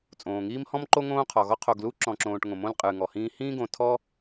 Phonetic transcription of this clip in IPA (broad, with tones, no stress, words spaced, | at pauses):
t͡sʼõː˩ŋiː˦mhɔ̃˥mǃo˥ ŋõː˦qʰɔ˩ɣɔ˥ qʰo˨ɡlu˥ ǁɔ̃˨ǁõː˨ʈŋõ˩mõ˦l qʼɨː˨ŋɔ˨hĩː˥ hĩː˥ɡõ˨tʰɔ˥